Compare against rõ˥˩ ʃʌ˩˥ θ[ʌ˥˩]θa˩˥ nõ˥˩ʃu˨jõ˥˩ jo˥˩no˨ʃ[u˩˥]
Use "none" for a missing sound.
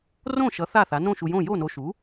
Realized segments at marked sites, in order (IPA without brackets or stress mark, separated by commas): a˥˩, u˩˥